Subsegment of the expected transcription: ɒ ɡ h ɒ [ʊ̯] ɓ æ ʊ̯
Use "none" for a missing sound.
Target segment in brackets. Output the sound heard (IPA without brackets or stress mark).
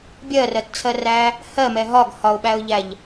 ʊ̯